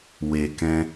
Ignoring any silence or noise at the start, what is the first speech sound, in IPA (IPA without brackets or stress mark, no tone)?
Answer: w